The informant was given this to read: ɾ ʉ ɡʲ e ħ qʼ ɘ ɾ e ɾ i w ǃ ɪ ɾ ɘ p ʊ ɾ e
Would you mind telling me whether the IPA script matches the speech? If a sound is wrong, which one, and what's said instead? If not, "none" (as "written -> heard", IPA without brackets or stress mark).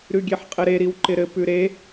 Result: ʊ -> ʉ